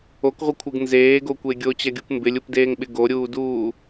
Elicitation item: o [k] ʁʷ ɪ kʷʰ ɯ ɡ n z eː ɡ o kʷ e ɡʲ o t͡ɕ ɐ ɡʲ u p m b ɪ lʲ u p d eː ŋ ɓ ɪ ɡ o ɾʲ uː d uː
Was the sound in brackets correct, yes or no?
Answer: yes